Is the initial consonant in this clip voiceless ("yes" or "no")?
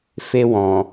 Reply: yes